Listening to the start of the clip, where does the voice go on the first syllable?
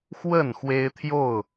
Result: falling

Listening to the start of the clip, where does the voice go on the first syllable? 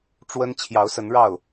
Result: high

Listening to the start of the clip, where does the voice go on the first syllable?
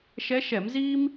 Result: rising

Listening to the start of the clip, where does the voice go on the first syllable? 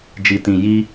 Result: low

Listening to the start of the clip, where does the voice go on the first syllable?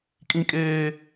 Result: high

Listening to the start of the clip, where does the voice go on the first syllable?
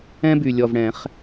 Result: high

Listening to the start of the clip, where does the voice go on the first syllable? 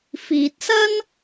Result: low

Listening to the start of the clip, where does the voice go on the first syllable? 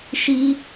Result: high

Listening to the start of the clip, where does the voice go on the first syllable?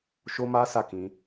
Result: high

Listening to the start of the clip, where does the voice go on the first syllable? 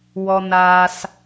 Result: high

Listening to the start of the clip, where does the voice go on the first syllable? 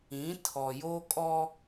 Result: rising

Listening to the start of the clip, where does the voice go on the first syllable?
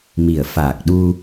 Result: low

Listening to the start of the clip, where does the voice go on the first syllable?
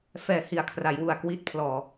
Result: low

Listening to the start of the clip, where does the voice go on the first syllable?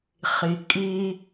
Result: low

